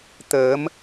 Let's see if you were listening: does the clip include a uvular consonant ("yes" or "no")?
no